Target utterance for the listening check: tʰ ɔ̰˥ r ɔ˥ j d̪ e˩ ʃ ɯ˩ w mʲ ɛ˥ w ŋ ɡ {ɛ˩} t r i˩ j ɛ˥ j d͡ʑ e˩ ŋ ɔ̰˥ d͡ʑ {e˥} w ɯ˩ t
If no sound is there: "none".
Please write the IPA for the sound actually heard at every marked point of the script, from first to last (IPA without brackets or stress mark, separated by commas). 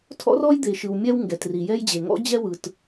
ɛ˩, ɛ˥